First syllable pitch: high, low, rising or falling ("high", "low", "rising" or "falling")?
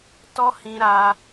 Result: high